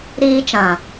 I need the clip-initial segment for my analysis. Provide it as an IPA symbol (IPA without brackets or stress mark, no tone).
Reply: ɾ